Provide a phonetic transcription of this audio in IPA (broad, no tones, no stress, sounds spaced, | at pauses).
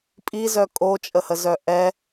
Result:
pʼ i z œ kʼ o t͡ʃʼ ə h ə z œ ʔ ɛ